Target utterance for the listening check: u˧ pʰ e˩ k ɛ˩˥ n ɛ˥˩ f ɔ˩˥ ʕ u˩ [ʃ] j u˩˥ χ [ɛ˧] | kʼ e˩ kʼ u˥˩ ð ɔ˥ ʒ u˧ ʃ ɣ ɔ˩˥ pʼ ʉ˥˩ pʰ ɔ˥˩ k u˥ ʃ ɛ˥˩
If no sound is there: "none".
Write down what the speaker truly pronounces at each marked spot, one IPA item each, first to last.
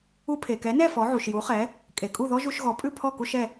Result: ʃ, ɛ˩˥

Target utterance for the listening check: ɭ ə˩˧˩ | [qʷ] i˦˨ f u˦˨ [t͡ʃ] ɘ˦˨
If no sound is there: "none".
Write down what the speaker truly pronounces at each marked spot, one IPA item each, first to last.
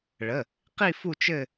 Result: q, t͡ʃ

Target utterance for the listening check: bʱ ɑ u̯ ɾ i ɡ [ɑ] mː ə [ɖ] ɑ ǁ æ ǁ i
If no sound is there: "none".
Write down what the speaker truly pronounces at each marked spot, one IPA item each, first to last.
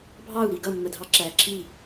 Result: ʌ, dʱ

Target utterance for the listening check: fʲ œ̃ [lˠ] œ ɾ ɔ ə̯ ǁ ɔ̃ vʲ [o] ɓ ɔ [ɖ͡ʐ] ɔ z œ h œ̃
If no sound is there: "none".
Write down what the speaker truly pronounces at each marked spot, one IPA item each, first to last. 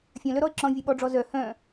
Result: l, u, ɖ͡ʐ

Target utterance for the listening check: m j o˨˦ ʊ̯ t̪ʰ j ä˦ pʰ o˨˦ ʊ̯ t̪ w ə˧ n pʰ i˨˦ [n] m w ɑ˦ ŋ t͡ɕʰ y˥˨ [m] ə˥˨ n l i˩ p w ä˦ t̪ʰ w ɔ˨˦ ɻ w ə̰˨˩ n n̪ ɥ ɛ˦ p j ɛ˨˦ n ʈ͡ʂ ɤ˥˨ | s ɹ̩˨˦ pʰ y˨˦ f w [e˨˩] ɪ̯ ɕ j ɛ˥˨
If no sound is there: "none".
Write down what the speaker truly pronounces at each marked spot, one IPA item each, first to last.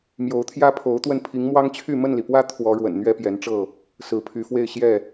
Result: ŋ, m, e˥˨

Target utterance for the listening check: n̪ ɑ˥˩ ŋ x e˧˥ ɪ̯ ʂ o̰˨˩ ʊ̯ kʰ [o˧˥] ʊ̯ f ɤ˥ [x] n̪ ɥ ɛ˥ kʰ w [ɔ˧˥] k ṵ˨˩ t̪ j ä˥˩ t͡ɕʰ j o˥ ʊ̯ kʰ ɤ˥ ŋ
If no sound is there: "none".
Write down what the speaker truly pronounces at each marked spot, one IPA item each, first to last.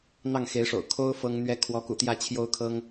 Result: o˥, ŋ, ɔ˧˥

